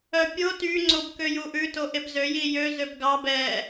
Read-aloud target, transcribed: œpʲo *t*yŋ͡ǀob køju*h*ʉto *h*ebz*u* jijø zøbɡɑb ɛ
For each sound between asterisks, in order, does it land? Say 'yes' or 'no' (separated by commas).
yes, no, no, no